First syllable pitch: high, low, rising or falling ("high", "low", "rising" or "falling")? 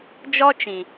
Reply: high